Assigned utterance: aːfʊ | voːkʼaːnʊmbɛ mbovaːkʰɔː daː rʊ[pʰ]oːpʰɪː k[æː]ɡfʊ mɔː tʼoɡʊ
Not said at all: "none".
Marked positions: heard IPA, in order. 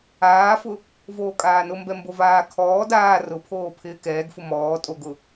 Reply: pʰ, ɛː

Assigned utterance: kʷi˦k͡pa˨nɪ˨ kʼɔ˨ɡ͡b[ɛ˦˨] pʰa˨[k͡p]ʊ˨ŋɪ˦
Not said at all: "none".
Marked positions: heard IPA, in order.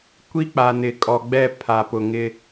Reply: ɛ˦˨, p

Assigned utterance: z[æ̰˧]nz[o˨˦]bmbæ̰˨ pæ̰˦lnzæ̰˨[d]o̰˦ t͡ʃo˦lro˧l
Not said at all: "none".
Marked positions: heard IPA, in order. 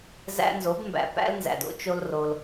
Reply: æ̰˧, o˨˦, d

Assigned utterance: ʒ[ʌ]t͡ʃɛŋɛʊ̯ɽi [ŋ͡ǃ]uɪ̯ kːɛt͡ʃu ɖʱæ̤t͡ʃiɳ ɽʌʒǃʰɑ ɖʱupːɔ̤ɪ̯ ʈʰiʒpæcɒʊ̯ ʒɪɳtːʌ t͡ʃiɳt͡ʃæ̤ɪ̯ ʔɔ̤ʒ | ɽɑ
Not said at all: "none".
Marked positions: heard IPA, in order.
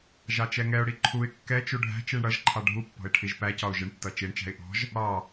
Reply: ɑ, ǃʰ

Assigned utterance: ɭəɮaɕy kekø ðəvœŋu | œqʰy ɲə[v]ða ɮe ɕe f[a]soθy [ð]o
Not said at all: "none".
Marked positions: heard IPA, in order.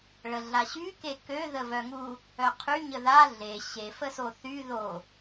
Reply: none, ə, ð

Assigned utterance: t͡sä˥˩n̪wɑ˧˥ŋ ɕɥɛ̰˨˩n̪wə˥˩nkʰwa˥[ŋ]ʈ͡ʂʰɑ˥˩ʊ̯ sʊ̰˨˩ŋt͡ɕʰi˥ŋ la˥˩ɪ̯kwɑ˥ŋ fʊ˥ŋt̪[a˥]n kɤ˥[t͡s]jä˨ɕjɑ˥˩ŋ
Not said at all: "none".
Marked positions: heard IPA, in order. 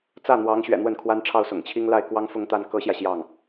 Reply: n, a˥, ɕ

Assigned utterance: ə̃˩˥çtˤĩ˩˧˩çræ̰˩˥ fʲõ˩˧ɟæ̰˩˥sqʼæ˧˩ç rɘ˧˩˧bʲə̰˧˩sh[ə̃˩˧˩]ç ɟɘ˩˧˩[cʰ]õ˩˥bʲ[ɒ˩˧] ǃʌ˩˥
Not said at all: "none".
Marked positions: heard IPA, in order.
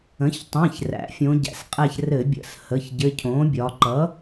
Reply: ə˩˧˩, cʰ, ɒ˩˧

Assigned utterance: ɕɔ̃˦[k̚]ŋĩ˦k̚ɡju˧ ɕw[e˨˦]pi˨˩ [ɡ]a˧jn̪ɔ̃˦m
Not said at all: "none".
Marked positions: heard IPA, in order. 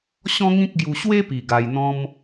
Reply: none, e˦, ɡ

